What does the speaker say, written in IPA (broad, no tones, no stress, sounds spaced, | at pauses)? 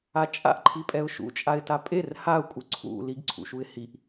a t͡ʃʼ a̰ ʔ ǃʰ i pʼ ɛ ʊ̯ ʃ ṵ t͡ʃʼ a ɪ̯ t a pʼ e r h a ʊ̯ kʷʼ ɯ ǀʰ ṵ l i ɡ ǀʰ ṵ ʃ u ɪ̯ h i ʔ